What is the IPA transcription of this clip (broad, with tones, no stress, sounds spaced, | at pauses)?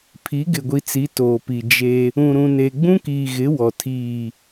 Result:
pʰ i˨˦ ɡ ɪ˨ ɡʷ i˨ t͡s i˨˦ t oː˨ p i˨ d͡ʒ e˦ | ũ˨ ɾ ũ˨ n e˨ ɡ͡b ũ˦ k iː˨ ɣ ɪ˨˦ w ɔ˨ tʰ iː˦˨